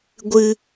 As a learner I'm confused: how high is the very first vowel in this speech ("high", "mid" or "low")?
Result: high